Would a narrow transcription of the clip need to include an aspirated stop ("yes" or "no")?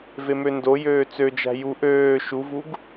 no